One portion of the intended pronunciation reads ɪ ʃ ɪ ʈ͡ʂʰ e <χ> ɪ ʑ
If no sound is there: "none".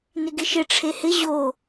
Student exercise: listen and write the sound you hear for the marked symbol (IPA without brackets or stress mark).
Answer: h